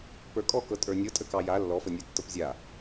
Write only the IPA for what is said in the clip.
p ə˞ kʼ ɔ k ɤ tʼ ə˞ nʲ ɤ tʼ ə k ɑ j a lː ɔ f ə nʲ ə˞ tː ɤ p zʲ a

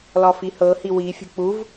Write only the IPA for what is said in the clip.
l ɒ f i h ɤ h i w i fʲ ṳ k͡p u v

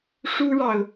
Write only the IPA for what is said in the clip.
ʂ u˥ ɻ ɑ˨ ʊ̯

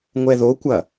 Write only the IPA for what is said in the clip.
ŋʷ ɛ ð o kʷ ɐ

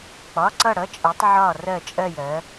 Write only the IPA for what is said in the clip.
k͡p ɒ˩˧˩ ǀ ʌ˧˩ ɽ ʌ˩˧˩ t͡ʃʼ ɜ˩˧ tˤ ʕ ɒ˧˩ r ɜ˧˩ t͡ʃʼ ɜ˧˩ j ɜ˩˧

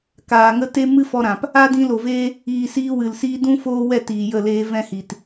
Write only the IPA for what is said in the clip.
k aː˨ ŋ ə˦ t e˦ m ɨ˦ f ɔ˧ ɾ ã˨ p | a˦ d ĩ˧ l o˨ v eː˦ | iː˨ s iː˧ w ɨ˨ l s iː˦ d ũ˦ f oː˦ w ɛ˦˨ t iː˨ j ə˦˨ l eː˦ v ɛ̃˦ h i˨ t

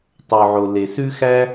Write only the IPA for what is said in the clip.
tˤ o˩ ʕ o˩ l e˩ s ʉ˥ x æ˥

